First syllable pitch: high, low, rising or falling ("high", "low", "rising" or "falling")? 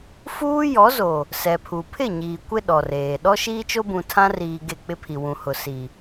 high